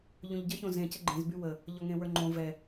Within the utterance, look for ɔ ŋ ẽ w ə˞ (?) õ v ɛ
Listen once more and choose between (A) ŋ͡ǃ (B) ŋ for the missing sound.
A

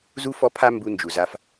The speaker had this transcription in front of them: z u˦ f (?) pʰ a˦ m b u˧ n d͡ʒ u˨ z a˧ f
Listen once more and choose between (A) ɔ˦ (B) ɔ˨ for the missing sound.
A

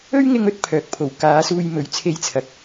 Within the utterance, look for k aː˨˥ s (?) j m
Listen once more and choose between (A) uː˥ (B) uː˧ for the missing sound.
B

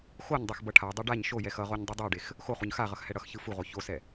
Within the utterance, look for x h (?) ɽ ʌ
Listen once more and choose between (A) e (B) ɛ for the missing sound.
B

